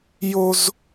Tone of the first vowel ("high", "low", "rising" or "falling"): high